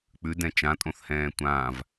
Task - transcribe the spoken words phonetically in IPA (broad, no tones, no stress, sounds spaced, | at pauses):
k͡p ʉ d ɛ̃ t͡ʃ ã tʼ õ θ h ɛ̃ː tʷ ãː v